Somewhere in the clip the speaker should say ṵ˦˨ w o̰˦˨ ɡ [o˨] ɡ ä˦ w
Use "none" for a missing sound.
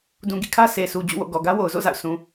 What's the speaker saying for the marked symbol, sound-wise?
ɔ˨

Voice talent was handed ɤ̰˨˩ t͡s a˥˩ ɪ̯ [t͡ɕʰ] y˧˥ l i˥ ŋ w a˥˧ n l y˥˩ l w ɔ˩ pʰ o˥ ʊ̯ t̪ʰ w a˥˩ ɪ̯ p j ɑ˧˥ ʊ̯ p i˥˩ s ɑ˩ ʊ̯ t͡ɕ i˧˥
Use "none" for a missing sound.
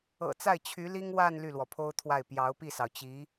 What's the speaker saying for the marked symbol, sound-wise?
t͡ɕʰ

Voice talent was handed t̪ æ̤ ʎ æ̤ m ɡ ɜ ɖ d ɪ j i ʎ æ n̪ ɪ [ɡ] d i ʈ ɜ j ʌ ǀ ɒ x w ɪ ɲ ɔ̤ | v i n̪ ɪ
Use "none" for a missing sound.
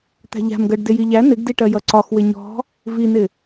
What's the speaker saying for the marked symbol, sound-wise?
ɡ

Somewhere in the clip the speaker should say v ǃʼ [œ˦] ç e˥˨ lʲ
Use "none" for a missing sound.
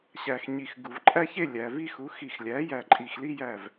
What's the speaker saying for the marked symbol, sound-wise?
æ˦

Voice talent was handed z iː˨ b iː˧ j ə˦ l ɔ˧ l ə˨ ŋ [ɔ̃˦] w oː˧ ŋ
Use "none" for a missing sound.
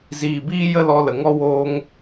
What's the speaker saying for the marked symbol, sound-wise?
ɔ˦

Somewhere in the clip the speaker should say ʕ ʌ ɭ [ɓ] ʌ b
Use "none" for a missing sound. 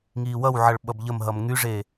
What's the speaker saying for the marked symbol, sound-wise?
ɓ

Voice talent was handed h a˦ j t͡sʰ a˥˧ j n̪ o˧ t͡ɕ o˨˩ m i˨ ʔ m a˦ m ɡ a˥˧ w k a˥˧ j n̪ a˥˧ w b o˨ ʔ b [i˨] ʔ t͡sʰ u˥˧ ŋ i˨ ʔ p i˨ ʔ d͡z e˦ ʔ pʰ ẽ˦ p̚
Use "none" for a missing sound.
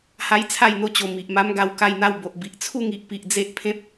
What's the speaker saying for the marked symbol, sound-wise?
i˨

